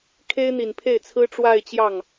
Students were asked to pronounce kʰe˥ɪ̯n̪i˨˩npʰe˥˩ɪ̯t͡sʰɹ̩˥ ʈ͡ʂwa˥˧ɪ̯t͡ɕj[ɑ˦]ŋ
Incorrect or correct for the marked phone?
incorrect: ɑ˥˩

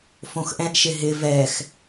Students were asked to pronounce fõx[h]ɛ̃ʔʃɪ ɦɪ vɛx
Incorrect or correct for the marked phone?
incorrect: ʔ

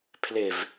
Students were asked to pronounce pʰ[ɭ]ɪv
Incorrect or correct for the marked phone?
incorrect: l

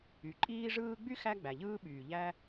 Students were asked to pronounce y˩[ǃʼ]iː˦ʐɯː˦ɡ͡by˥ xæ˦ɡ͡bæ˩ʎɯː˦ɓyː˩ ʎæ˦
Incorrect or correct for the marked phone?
correct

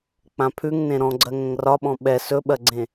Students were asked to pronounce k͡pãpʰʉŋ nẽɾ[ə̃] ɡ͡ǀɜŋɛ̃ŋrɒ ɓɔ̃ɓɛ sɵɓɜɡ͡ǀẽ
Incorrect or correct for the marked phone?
incorrect: ɔ̃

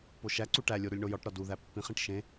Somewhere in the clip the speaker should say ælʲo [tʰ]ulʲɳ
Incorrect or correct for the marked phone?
incorrect: ɾ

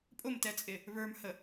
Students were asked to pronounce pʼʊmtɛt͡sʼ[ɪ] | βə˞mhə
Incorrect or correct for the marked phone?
correct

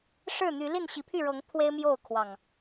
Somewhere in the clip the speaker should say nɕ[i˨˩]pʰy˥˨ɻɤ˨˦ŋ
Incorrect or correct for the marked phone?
incorrect: i˨˦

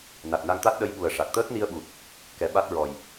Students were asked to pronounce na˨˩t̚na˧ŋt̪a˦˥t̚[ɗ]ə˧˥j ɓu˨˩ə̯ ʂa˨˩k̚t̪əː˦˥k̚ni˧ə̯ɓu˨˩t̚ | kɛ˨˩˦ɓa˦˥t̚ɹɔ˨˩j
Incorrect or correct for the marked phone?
correct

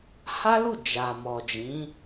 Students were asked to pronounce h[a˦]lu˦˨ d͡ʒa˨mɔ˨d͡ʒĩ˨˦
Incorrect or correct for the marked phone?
correct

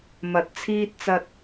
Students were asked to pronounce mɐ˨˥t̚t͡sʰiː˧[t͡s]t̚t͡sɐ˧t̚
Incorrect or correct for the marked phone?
incorrect: none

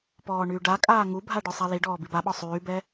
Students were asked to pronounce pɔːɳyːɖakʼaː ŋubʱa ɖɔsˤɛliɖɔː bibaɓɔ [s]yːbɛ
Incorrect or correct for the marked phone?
incorrect: sˤ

